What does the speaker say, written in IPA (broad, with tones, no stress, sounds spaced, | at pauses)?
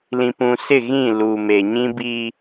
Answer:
l ĩ˨ p ũ˨ s ɪ˦˨ ɣ ĩ˦˨ l u˨ m e˨ ɲ ĩ˦ b i˦